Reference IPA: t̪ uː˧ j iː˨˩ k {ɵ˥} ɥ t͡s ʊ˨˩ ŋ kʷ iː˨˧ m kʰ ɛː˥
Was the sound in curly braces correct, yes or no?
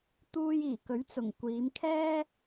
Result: no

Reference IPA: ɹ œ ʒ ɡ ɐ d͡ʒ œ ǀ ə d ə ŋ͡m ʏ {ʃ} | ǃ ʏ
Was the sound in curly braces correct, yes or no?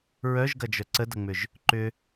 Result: no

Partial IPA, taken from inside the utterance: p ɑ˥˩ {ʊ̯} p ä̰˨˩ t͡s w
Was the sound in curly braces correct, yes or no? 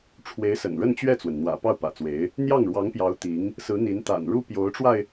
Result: yes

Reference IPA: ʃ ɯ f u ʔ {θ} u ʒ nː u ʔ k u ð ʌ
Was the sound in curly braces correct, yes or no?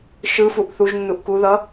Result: yes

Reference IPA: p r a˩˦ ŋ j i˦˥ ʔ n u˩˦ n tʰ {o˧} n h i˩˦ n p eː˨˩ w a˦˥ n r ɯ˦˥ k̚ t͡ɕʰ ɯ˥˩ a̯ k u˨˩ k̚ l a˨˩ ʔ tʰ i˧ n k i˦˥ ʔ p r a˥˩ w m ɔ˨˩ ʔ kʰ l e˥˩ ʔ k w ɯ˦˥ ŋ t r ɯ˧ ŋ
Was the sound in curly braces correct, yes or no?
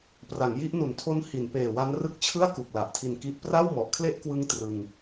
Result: no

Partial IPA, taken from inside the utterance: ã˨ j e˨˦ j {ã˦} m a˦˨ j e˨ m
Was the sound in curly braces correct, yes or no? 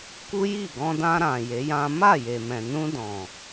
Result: yes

